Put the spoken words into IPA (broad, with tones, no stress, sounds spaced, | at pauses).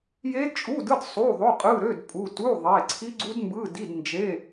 j e˦˥ d t͡ʃʼ u˧˥˧ d ɯ˧˥˧ d sˤ u˧˥˧ ðˤ o˧˥˧ qʼ ɯ˧˥˧ ɾ ø˧˥˧ d pʼ u˧˥˧ t u˧˥˧ ðˤ e˧˥˧ ǀʰ i˦˥ ɡ͡ǀ u˦˥ d m b ɯ˧˥˧ d i˧˥˧ d n d͡ʒ e˧˥˧